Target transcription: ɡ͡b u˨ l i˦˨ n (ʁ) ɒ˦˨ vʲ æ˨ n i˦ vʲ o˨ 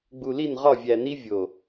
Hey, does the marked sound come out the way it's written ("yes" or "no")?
yes